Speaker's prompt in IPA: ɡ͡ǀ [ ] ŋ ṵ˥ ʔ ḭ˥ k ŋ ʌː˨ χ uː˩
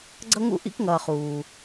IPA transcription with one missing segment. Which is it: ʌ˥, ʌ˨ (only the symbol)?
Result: ʌ˥